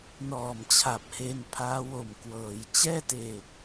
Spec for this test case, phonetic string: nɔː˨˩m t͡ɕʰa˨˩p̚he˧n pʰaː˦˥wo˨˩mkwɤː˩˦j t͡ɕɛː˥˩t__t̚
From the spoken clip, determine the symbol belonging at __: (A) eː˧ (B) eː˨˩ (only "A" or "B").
B